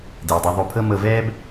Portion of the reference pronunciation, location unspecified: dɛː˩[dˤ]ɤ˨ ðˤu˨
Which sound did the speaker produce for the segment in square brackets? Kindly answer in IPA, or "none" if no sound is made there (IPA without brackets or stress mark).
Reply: dˤ